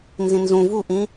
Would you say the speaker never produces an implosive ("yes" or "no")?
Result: yes